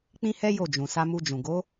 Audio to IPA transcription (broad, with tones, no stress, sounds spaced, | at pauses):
k͡p ĩ˦ h ɛ˦ j o˦˨ d͡ʒ ũ˨ s a˧ m u˧ d͡ʒ ũ˨ ɡ o˨˦